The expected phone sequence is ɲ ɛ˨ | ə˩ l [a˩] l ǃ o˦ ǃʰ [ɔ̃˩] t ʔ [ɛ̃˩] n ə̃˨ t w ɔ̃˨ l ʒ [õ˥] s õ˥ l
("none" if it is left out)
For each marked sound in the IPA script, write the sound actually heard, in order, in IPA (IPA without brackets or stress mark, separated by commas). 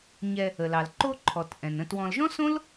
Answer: ɑ˩, ɔ˩, ɛ̃˩, ɔ̃˥